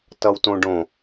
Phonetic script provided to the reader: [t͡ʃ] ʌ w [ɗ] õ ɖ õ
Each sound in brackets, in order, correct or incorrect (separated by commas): incorrect, incorrect